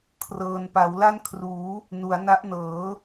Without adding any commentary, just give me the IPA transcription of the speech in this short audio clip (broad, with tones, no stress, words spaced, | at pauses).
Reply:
kʰrɤː˧n pa˩˦wla˥˩nkʰruː˩˦ | nu˩˦a̯na˦˥ʔnɤː˩˦